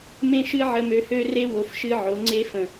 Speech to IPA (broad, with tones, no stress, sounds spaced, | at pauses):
m ẽ˦ ʃ ɨ˦ ʕ ə˧ m ø˧ h ø˦ r e˦ w o˧ f ʃ ɨ˦ ʕ o˨˦ ŋ͡ǀ e˦ f ə̃˨